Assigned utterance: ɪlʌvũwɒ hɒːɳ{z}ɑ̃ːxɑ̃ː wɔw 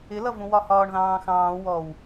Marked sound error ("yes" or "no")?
yes